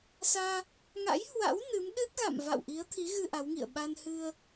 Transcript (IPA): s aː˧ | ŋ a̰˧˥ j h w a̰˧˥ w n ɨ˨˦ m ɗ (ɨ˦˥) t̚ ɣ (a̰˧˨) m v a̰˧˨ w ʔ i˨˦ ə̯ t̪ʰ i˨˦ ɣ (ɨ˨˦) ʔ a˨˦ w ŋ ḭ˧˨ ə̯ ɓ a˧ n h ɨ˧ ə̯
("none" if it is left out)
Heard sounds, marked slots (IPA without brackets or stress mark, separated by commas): ɨ˦˥, a̰˧˨, ɨ˧